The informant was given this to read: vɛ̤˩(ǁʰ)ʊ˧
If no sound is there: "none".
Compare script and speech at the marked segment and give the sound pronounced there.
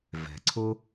ǀʰ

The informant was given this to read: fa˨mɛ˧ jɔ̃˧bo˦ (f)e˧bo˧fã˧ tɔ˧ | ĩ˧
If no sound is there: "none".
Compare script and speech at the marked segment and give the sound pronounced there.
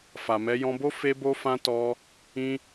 f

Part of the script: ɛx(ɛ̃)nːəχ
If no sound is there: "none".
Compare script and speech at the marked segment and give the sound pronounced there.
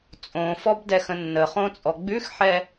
ə̃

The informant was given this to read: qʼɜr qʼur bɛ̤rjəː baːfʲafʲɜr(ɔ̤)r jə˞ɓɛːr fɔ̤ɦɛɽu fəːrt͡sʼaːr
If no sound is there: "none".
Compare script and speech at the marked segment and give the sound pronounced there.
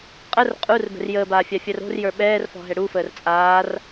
o̤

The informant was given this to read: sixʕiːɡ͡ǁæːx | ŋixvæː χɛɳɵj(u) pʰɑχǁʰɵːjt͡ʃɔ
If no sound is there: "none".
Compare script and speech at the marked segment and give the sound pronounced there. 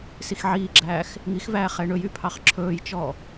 y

